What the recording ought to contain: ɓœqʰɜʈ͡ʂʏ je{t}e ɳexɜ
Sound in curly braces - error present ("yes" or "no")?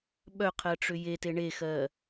no